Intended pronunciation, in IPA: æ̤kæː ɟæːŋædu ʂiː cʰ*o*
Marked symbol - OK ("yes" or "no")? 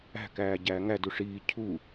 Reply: no